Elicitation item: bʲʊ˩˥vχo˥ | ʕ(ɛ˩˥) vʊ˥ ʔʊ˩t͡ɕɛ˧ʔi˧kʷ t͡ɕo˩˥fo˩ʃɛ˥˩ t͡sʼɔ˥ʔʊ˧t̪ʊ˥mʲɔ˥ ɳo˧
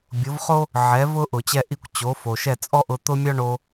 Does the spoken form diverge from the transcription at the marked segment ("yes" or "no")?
no